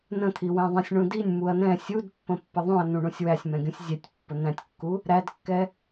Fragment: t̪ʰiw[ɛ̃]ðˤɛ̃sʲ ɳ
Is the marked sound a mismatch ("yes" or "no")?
yes